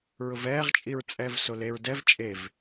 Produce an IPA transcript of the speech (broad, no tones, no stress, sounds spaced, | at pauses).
ɹ ʊ v ɛː ʁ t͡ʃʼ i ɹ t͡sʼ ɛː v s o l e ɹ d ɛ v t͡ʃʼ e v